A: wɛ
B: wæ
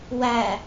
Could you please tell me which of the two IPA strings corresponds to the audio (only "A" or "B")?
B